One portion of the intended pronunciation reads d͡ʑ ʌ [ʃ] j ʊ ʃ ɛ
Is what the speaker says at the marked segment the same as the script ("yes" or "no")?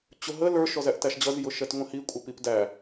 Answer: no